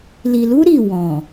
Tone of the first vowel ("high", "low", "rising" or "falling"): low